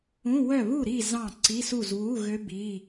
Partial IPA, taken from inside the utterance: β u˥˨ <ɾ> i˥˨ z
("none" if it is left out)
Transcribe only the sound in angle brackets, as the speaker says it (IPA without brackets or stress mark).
ɾ